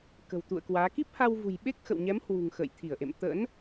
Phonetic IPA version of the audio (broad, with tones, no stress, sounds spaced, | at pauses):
k ə̤˨˩ w t̪ ṵ˧˨ ə̯ k w aː˨˦ k i˦˥ p̚ h a˧ w v ṳ˨˩ j ɓ e˦˥ k̚ x ə̰˧˨ w ɲ ɛ˨˦ m h w ṳ˨˩ ŋ x ə̰ː˧˨ j t̪ʰ i˧˩ ə̯ ʔ ḛ˧˨ m t̪ ə̰ː˧˥ n